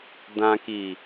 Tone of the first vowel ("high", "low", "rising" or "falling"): low